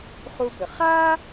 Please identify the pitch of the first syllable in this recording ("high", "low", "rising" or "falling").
high